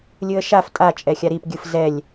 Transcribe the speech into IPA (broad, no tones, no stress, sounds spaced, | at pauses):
lʲ ɯ ə̯ ʃ a f tʼ a t͡ʃʼ ɛ xʲ a ɾ i p ɡʲ ɯ f z ɛ lʲ